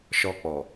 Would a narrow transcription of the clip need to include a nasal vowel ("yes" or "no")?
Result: no